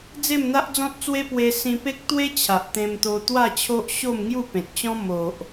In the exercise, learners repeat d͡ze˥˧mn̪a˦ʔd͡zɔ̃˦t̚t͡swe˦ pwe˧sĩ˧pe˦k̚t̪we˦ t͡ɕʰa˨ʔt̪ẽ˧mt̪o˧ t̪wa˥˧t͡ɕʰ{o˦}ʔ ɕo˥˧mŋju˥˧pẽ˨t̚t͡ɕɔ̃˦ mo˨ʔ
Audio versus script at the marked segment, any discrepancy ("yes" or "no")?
no